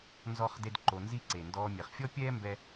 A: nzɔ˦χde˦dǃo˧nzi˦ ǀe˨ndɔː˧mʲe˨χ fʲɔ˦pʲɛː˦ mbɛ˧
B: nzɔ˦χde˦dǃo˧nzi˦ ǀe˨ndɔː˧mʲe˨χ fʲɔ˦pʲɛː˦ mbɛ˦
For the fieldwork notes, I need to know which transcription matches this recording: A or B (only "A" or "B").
B